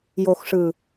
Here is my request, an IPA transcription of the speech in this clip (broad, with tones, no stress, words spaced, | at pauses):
jo˨xʂɯ˨